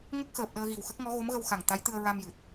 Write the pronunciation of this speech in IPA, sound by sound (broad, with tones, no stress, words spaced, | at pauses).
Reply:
ŋə˦˥k̚xəː˨˩p̚ ɗəː˧ɣi˨˩wxə˦˥k̚ŋɔ˧˥ ɣo˧˥mɣə˧wxa˨˩ŋ t̪a˧˥jt̪ɨ˧ə̯ ɹa˧mjɨ˨˩t̚